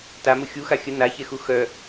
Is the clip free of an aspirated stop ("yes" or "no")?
yes